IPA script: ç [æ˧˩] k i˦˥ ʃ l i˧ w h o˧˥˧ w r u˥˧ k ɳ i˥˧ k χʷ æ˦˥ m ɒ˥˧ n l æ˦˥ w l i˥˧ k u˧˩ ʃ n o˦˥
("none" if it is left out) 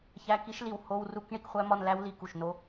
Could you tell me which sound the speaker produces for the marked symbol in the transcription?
æ˧˥˧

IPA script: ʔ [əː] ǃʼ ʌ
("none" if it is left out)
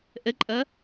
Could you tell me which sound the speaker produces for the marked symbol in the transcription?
ə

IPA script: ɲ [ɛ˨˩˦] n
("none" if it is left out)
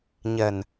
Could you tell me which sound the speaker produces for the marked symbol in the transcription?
ɛ˨˩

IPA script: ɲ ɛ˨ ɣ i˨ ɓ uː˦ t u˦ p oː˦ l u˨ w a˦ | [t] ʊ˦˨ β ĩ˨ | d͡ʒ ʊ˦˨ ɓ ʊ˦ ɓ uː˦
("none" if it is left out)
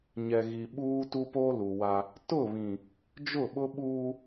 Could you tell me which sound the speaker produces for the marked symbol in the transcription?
t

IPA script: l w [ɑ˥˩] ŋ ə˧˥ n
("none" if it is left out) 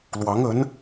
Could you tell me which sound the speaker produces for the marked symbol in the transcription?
ɑ˧˥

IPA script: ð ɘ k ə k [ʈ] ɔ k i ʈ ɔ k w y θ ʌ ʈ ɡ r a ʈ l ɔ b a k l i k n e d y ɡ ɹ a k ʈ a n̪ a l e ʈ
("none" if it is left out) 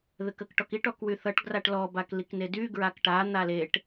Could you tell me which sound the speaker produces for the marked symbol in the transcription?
ʈ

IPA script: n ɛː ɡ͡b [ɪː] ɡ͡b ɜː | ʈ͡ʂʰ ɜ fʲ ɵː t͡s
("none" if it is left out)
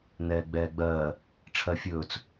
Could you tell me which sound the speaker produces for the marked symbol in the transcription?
ɛː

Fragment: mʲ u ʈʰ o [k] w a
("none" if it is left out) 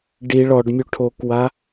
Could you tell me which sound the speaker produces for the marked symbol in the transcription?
k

